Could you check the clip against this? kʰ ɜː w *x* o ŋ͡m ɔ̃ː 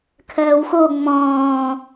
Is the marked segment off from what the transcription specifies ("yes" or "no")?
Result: no